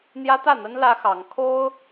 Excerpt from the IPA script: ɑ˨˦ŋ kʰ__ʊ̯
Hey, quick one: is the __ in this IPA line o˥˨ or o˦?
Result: o˦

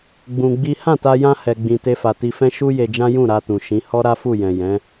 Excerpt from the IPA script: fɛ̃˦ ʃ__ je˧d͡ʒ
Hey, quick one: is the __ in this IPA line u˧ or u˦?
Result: u˦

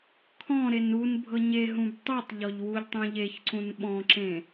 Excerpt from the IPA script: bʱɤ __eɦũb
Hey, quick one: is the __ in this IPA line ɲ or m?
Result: ɲ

